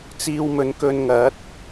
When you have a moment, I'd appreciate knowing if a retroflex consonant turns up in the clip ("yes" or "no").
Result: no